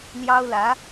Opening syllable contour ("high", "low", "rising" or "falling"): high